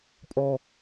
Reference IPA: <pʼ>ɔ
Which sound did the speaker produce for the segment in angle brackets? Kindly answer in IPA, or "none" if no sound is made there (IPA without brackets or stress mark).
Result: pʼ